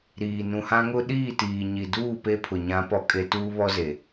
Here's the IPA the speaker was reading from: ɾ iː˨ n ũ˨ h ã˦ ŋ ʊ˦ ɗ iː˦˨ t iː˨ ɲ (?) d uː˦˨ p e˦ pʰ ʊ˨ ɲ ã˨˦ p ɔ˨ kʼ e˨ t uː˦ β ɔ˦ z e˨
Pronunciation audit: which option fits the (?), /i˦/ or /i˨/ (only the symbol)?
i˨